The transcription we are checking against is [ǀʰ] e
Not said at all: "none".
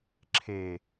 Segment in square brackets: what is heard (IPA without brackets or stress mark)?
ǁʰ